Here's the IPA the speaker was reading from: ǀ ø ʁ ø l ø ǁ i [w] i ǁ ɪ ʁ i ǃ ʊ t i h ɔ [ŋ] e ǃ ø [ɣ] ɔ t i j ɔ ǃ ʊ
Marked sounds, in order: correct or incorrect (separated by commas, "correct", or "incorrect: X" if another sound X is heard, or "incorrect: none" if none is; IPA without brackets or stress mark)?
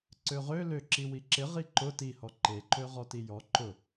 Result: correct, incorrect: ǃ, incorrect: ʁ